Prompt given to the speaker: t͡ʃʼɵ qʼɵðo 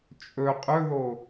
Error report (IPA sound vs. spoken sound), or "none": none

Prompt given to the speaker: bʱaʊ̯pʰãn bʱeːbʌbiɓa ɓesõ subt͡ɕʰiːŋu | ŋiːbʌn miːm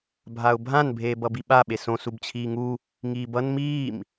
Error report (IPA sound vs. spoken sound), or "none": pʰ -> bʱ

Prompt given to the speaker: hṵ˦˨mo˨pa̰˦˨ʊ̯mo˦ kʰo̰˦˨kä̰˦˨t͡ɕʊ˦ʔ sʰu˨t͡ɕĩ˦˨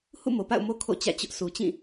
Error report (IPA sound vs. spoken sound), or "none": k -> t͡ɕ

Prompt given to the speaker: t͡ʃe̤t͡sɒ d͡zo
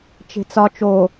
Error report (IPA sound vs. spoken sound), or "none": d͡z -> t͡ʃ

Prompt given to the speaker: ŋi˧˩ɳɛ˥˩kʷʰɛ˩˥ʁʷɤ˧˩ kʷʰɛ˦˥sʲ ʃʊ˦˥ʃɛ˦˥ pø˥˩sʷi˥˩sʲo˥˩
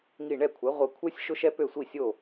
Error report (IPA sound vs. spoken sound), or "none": none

